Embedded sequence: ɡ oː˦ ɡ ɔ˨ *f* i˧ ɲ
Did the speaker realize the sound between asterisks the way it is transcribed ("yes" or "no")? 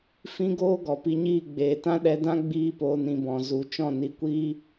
no